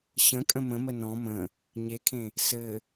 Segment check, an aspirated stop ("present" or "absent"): present